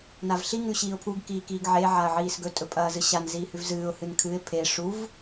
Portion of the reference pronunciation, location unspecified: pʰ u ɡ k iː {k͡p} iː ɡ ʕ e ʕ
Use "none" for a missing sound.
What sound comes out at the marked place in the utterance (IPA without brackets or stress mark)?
k